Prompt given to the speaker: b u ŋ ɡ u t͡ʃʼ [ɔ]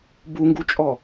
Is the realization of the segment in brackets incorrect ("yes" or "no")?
no